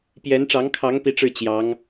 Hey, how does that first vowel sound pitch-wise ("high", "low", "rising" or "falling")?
rising